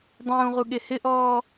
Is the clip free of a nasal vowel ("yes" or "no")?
no